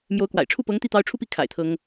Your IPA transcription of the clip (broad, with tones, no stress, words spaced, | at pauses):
mjo˧˥ʊ̯kwa̰˨˩ɪ̯ ʈ͡ʂʰu˥˩pɤ˧˥ŋt̪i˥˩ t̪ɑ˥ʊ̯ ʈ͡ʂʰu˥˧pi˥˩kʰa̰˨˩ɪ̯ t̪ʰɤ˥ŋ